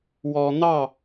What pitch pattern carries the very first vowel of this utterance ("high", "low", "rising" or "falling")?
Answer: low